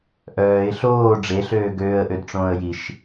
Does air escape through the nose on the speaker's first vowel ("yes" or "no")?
no